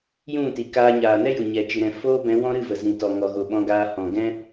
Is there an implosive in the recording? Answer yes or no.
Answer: yes